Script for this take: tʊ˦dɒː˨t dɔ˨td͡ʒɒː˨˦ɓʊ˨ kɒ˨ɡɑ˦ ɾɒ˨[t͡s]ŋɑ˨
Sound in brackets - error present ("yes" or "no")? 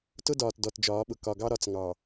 no